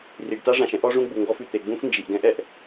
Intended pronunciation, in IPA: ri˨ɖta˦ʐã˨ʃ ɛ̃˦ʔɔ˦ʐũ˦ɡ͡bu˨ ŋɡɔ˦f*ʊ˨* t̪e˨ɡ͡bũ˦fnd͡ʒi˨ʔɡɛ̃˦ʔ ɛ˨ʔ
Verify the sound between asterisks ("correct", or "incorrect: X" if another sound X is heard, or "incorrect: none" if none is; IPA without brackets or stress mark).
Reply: incorrect: ʉ˨